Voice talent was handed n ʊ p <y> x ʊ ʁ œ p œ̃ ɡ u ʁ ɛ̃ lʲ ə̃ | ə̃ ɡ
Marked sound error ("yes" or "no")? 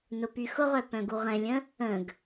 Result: no